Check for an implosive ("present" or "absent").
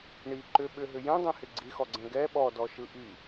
present